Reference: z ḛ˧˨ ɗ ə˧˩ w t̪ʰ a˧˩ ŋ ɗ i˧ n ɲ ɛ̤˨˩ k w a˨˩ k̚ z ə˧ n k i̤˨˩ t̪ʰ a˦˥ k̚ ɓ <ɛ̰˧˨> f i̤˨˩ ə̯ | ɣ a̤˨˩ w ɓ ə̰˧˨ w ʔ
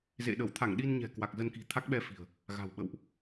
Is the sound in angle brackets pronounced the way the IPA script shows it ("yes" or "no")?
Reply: no